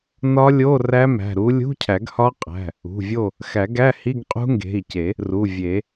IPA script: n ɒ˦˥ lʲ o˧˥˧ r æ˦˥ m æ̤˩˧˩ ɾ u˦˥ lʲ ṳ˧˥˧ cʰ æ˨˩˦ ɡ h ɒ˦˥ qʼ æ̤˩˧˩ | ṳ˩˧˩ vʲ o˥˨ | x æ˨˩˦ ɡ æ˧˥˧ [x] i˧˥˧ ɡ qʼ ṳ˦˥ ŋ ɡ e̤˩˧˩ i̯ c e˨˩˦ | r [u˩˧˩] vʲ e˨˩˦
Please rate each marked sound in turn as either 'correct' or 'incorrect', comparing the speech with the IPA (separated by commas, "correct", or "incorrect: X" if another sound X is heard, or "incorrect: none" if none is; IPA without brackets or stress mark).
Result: incorrect: h, correct